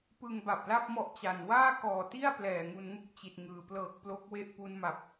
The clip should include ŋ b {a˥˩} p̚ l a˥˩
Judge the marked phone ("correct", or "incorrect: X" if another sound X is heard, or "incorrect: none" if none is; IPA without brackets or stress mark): incorrect: a˨˩